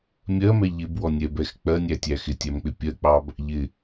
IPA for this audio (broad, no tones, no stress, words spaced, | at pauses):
mʲɜmɛ ʎɪbwɔnʲɛbɛx k͡pɜnʲætʲæ xɪtʲæmk͡pɪ pʲɜk͡pɑb | ʎɪ